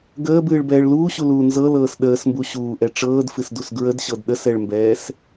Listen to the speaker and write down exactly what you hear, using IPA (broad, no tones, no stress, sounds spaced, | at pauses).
ɡ əː b ɨː ɭ b ɛː ɭ l uː ɕ u l uː n z ɤ l ɤː s ɗ əː s m b u ɕ uː ʔ ɛ ʈ͡ʂ ɤː d f ɨ s d u s ɡ ɹ ə d ɕ ɤ d ɗ ə s ɛ ɭ m b ɛː s